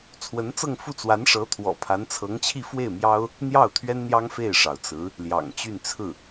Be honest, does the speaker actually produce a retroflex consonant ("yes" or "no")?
yes